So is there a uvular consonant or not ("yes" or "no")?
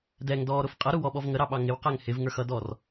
yes